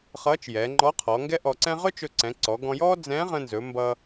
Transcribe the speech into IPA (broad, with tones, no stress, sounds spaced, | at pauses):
χ ʌː˧˥ t͡ʃ j ɛ˩˧ ŋ͡ǃ ɔ˧˥ qʰ ɔ˩˧ ŋ ɡ ɛ˥ ʔ ɔ˧ ǀ ɛ̃˥ ʁ ɵ˥ t͡ʃ ɵ˧ ǀ ɛ̃˩˧ ǀ ɔ˩˧ ɡ ɔ̃˧ j ɔː˥ d͡z ɛ̃˧˥ ʁ ə̃˧ n z ɵ˩˧ m b ʌ˧